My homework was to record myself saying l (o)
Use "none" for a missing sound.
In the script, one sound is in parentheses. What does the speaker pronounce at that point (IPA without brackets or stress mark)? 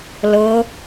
ɤ